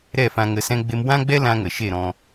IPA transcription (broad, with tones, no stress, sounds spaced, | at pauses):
ɾ ɛ˦˨ f ã˧ ŋ ə˧ s ɛ̃˦ ɡ͡b e˦ m w ã˦ ɡ͡b ɛ˦ l ã˦ ŋ ə˨ ʃ e˦˨ ɾ ɔ̃˧